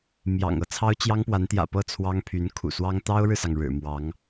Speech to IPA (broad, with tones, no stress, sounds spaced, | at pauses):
m j ɑ̰˨˩ ŋ ɤ˧˥ t͡sʰ ɑ˥ ʊ̯ t͡ɕ j ɑ˥ ŋ p w a˧˥ n t̪ j ä̰˨˩ p ɤ˥˩ t͡sʰ w ɑ˥ ŋ pʰ y˧˥ n kʰ ṵ˨˩ s w ɑ˥ ŋ t̪ ɑ˥ ʊ̯ ɻ ɻ̩˨ s ɑ˩ ŋ ɻ ɻ̩˨˩ m w ɑ˧˥ ŋ